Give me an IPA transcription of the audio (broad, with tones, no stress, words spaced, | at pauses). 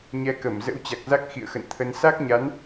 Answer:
ɲɛ˨˦ kə˧˩m zə̰˧˥wt͡ɕa˨˩k̚za˦˥k̚ xḭ˧˨ə̯xə̰˧˨nt̪ʰə˧n sa˦˥k̚ɲa˨˦n